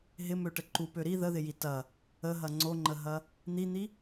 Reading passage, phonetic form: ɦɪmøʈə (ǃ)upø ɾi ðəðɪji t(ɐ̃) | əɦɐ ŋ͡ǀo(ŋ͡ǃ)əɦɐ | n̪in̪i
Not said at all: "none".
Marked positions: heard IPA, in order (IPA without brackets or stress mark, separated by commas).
ǃ, ɐ, ŋ͡ǃ